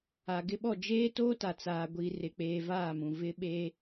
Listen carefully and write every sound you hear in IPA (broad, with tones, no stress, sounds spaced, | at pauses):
a˨ ɡ ɪ˦ ɓ ɔ˦˨ d͡ʒ eː˦ t oː˦ t a˨ t͡s aː˨ ɡʷ iː˨ r ɪ˨ k͡p eː˨ v aː˦˨ m ũ˨ v ɪ˦ ɓ eː˦